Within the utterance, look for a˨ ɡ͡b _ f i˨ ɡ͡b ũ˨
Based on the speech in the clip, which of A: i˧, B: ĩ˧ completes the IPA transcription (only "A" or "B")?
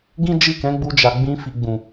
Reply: B